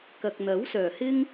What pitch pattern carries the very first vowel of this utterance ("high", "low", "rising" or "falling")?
low